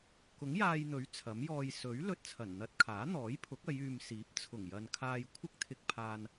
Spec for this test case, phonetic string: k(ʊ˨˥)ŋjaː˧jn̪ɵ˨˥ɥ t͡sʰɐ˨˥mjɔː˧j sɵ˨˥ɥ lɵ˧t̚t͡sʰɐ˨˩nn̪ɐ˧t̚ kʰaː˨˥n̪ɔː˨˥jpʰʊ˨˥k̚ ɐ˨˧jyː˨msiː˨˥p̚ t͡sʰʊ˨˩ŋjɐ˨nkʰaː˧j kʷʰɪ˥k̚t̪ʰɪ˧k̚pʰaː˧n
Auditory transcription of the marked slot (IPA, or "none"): ʊ˨˥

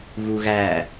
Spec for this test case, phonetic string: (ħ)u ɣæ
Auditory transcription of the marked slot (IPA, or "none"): ɣ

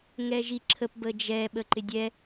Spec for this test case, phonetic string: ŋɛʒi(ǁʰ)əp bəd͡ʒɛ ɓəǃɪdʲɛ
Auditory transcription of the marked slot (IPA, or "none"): ǁʰ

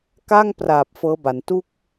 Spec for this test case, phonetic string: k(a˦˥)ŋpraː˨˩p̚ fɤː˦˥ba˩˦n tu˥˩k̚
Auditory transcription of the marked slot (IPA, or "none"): a˥˩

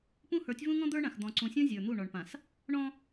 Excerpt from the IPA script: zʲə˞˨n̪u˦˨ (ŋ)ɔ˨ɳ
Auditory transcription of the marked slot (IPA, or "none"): ɳ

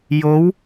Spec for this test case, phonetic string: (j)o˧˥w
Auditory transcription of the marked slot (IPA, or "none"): j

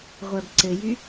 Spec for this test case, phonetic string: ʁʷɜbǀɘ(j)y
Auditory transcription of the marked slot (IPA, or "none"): j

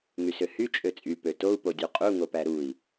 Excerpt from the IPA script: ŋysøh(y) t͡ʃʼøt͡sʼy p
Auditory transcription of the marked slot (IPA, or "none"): y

